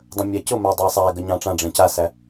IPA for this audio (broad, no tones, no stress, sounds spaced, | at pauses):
dˤ ə̃ mʲ æ c ʊ m æ dˤ ɑ sˤ æ ɡ ə ɲ ɑ̃ ʈ͡ʂ ã ɖ͡ʐ ẽ c a s æ